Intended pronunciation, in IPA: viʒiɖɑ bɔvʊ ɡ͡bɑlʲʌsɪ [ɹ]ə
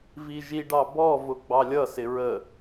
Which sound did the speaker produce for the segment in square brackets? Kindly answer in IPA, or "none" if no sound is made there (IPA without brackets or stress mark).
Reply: ɹ